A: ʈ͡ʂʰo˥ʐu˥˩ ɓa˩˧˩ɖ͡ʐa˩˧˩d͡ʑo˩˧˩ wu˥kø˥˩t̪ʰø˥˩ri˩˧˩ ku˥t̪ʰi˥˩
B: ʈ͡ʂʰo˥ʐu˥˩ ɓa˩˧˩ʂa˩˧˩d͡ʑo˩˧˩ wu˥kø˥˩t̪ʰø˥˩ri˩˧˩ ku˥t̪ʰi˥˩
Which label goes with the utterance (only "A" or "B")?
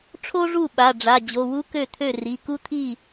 A